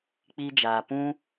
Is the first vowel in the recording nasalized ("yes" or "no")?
no